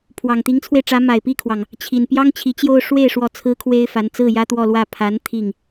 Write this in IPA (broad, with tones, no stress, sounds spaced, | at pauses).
pʰ w ɑ˨˩ ŋ t̪ i˧˥ ŋ t͡sʰ w e˧ ɪ̯ ʈ͡ʂ ä˧˥ m a˨˩ ɪ̯ p i˥˩ kʰ w ɑ˩ ŋ | t͡ɕʰ i˨˩ n p j ɑ˥ ŋ t͡ɕʰ i˧˥ t͡ɕ j o˥˧ ʊ̯ ʂ w e˥˩ ɪ̯ ʂ w ɔ˧˥ t͡sʰ ɹ̩˥ kʰ w e˥ ɪ̯ f a˧˥ n t͡s ɹ̩˥˩ j ä˥ t̪ w ɔ˥˧ l w ä˥˩ pʰ a˧˥ n t̪ʰ i˥˩ ŋ